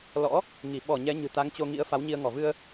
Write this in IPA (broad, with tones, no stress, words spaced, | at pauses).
lɔ̰˧˥ | ŋi˧˩ ɓɔ˧˩ ɲɛ˨˦ɲɨ̤˨˩ t̪a˨˦ŋt͡ɕo˧ŋḭ˧˥ə̯ fa˨˦wɲi˧ə̯ ŋɔ˧˩vɨ˧ə̯